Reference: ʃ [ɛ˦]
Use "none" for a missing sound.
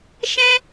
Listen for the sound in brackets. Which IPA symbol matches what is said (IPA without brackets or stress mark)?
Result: ɛ̃˦